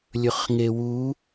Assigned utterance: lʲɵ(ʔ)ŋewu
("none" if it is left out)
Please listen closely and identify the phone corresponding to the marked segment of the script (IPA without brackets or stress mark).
χ